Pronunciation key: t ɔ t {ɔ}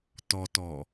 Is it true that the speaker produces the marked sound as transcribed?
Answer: yes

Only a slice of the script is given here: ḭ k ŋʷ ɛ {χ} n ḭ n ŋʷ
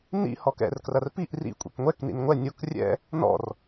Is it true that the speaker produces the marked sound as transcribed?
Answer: no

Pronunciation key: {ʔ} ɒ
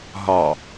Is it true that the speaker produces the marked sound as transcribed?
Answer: no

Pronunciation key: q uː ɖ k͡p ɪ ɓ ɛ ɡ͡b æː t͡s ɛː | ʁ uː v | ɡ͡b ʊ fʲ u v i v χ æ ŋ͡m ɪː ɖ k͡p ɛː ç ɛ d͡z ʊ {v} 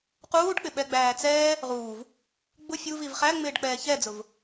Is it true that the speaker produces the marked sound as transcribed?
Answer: yes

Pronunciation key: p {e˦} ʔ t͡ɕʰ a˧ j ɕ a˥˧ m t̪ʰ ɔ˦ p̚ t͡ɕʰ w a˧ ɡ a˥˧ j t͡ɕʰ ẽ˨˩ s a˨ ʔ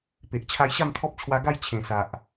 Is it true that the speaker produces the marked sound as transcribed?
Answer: no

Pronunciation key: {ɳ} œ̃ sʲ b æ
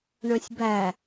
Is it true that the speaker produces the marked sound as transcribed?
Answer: yes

